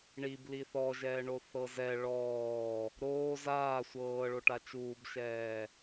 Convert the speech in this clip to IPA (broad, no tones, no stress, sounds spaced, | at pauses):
ɳ i b l i θ ɔ ʒ ɛː ɳ o θ ɤ z ɛ ɭ ɔː | ɾ oː z aː sʷ ɤː ɭ o ʈ a t͡ʃ uː b ʃ ɛː